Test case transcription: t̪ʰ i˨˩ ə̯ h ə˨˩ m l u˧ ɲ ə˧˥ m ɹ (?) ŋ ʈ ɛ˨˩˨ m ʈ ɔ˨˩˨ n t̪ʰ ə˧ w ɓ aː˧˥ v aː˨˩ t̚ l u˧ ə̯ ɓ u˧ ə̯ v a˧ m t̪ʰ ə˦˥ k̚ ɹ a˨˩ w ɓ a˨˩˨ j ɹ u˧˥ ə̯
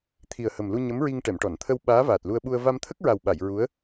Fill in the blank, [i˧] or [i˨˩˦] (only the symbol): i˧